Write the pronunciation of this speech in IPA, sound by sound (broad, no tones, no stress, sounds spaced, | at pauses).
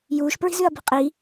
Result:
j uː ʃ p ɹ i̤ z ʉ ɐ̯ b i̤ qʼ i